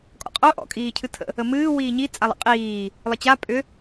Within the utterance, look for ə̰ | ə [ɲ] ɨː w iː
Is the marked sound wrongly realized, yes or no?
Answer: yes